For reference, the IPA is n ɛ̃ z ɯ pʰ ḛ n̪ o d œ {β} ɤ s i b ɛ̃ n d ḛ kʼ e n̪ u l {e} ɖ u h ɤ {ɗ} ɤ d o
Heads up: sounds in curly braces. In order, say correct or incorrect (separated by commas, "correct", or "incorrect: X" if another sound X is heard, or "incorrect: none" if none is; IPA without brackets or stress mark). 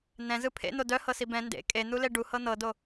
incorrect: h, correct, incorrect: n̪